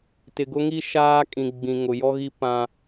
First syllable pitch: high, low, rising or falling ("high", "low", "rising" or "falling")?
low